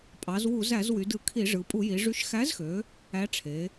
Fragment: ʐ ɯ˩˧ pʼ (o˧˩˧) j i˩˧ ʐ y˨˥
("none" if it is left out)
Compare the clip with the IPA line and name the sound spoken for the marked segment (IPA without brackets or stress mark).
u˧˩˧